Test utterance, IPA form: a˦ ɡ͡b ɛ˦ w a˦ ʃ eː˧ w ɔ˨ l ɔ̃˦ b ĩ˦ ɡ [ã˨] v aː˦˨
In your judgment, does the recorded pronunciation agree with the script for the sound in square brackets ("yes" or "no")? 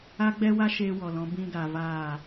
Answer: no